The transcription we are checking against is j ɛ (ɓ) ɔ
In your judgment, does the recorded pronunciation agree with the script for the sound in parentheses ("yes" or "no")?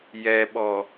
yes